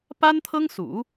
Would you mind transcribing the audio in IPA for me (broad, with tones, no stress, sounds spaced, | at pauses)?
p a˥ n t̪ʰ ɤ˥ ŋ s ṵ˨˩˦